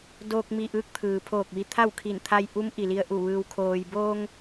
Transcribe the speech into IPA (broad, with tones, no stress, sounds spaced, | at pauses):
d oː˧ k̚ m i˧˩ ʔ ɯː˧˥ k̚ t̪ʰ ɯː˩ pʰ oː˧˩ k̚ ʋ i˧˩ t̪ʰ a˥˨ w kʰ i˧˩ n t̪ʰ a˧ j ʔ u˧˥ m ʔ i˩ l i˧ ə̯ ʔ u˧˩ ʋ ɯː˧ w kʰ oː˧ j b oː˧ ŋ